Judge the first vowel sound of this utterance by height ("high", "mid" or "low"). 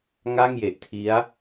low